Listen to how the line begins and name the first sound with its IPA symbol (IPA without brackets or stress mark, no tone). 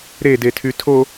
ɾ